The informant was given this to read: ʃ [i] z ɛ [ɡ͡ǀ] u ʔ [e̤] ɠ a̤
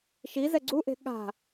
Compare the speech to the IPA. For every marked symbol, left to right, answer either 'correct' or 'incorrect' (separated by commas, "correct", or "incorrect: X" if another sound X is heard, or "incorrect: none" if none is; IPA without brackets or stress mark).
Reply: correct, correct, correct